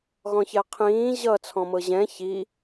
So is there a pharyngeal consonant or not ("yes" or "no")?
no